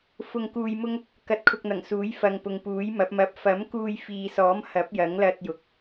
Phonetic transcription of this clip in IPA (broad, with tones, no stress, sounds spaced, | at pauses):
f ʊ˧ ŋ k uː˧ j m ʊ˥ ŋ | k ɐ˧ t̚ kʰ ʊ˧ k̚ n̪ ɐ˨˩ ŋ s uː˨˥ j f ɐ˨ ŋ p ʊ˨ ŋ p uː˨˥ j m ɐ˨˥ p̚ m ɐ˧ p̚ f ɐ˨˥ m k uː˧ j f iː˨ s ɔː˨˥ m h ɐ˨˥ p̚ j ɐ˨˥ ŋ l ɐ˧ t̚ j ʊ˨ k̚